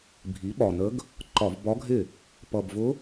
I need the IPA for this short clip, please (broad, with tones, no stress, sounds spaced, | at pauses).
bʱ i˩˥ ɓ ɒ˨˩ n ə˧˥ ɡ | ǃ ɒ˧˩˧ v b ɒ˧˥ ɡʱ ɪ˥˩ | p ʌ˨˩ b v ʊ˧˥